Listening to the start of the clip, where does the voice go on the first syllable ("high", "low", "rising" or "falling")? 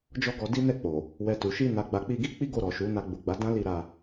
high